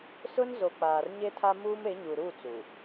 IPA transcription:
s ʊ˦ n z o˨ k͡p aː˨ r ɲ e˦ tʰ a˦ m uː˦ m e˨˦ ɲ u˨ ɾ u˦˨ t͡s u˨

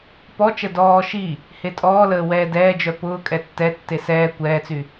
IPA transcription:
p ɔ t͡ʃ ə d ɔː ʃ i | h e tʼ ɔː l əː w ɛː d ɛː d͡ʒ œ p ʊː kʼ ɛ tː ɛ tː e s ɛː kʷ ɛː t͡s y

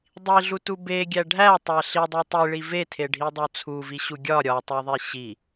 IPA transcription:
dˤ i ɮ u t u b e ɡʲ æ ɖʱ æ tˤ æ ɬ i dˤ i tˤ i ɭ i v e tʰ e ɖʱ i dˤ o t͡sʰ u v i ɕ u ɡʲ ɒ ɾʲ ɒ tˤ o ðˤ i ɕ i

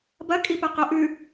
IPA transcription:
b ɐ kʼ i p ɐ q o ʔ ʉ

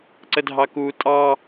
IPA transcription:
ǀ ə dʱ ɑ k u tʼ ɑ

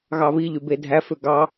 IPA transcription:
ɣ ɑ β i ʎ y b e dʱ æ f ø ɡ ɑ

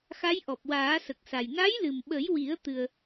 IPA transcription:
x a˧˥ j ʔ ɔ˨˩ p̚ w aː˨˩˦ s ə˨˩ k̚ s a˨˩ j n a˧˥ j l ɨ˨˩ m ɓ ə˨˩˦ j w i˨˩˦ ə̯ t̪ ɨ˧ ə̯

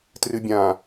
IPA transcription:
t r ɨ bʲ ã

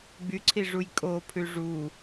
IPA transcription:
ɡ͡b y ǀʰ i ʐ u j kʼ o pʰ ʉ ʐ u

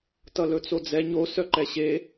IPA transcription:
t ʌ l ɵ t͡s o d͡z ɛ ɲ o s œ ǃ ɛ ɕ e

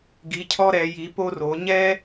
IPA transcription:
ɡ i˧˥ cʰ ɔ˥ ɾ ɛ˧˥ j i˧˥ p o˥ r o˧˥ ɲ ɛ˥

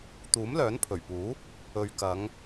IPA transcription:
t̪ uː˨˥ m l œː˨˥ n pʰ ɵ˨˩ ɥ p uː˨˥ | ɵ˨ ɥ k ɐ˨˧ ŋ

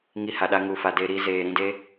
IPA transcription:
ŋ i˧ h a˨ ɗ a˧ ŋ u˨ f a˨ d e˧ ɾ i˧ z eː˨ ɾ ĩ˦˨ d e˧

